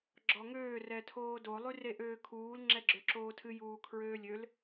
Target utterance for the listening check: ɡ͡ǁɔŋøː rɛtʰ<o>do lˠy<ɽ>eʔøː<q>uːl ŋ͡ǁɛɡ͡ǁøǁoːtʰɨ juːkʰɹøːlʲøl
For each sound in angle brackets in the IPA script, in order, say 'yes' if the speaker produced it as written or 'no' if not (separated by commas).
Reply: no, no, no